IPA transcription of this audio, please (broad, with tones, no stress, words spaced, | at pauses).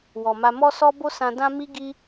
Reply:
wɔ˨ma˧ mɔ˦sɔ˦bo˦ sã˧ dã˦ mi˦ ɡi˦